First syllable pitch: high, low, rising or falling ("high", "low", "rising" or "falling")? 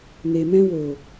low